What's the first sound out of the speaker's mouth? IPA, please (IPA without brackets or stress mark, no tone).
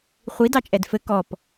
χʷ